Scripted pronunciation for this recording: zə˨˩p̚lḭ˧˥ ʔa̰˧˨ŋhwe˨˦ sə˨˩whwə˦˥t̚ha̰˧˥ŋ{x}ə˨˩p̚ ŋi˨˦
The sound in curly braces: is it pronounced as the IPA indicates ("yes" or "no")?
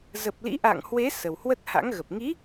no